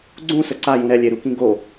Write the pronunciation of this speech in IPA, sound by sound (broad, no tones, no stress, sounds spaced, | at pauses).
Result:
ɡ͡ǀ ũ s ə ǀ a j ũ ɾ ɛ lʲ e ɾ u k ĩ ɡ o